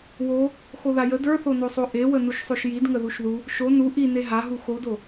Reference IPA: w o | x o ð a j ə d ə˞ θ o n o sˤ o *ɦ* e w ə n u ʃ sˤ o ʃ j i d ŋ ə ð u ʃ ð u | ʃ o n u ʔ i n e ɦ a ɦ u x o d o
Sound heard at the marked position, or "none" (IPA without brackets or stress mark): ʔ